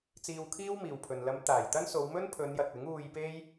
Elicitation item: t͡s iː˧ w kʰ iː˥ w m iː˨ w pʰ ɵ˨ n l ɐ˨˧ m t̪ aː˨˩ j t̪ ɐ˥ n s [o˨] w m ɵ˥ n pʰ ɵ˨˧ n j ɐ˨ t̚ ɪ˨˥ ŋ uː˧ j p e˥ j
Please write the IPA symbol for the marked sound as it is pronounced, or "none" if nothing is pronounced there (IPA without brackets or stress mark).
o˨˧